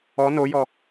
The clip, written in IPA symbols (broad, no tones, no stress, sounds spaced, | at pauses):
ɔ n o j ɔ